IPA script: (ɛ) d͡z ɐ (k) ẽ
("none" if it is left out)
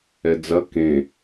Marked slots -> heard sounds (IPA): ɛ, k

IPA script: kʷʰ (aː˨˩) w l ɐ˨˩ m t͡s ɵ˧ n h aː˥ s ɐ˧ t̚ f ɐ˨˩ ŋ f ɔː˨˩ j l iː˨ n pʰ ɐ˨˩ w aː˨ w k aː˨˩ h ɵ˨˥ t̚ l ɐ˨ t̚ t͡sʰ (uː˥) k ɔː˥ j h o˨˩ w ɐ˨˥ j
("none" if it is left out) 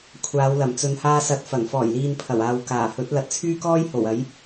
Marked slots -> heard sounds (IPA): aː˨˧, yː˥

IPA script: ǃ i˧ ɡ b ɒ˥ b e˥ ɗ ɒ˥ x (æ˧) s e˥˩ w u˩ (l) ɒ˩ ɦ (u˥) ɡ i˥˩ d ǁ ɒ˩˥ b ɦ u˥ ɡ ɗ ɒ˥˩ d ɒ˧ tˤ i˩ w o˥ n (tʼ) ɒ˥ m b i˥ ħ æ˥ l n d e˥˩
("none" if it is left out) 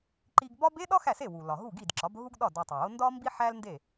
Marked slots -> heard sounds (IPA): æ˥˩, l, u˥˩, d

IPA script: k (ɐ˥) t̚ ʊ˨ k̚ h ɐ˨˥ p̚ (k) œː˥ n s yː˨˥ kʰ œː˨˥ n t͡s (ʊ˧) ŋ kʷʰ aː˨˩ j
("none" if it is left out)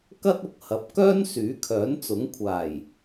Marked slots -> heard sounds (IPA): ɐ˥, k, ʊ˨˥

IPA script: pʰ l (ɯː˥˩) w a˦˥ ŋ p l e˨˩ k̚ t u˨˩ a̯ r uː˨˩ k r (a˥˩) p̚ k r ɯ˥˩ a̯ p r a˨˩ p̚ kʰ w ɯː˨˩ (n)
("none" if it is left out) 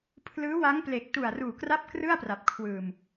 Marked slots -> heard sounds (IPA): ɯː˦˥, a˥˩, m

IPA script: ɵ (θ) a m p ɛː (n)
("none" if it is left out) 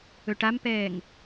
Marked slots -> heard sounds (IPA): ʈ, ŋ

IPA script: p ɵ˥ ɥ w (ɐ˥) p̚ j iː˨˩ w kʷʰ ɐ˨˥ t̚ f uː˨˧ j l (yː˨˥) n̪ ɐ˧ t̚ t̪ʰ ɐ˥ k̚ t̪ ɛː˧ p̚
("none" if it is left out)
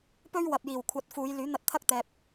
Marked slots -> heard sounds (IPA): ɐ˨, yː˨˥

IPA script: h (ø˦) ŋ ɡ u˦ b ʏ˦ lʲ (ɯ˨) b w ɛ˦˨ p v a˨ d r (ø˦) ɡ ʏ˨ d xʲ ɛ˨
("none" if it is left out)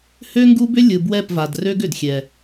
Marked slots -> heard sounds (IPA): ø˦, ɯ˨, ø˦

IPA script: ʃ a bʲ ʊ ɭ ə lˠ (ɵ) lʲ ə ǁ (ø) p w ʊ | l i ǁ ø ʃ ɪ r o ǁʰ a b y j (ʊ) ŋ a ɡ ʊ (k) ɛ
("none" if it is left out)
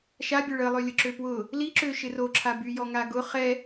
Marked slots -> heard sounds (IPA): ø, ø, ɔ, χ

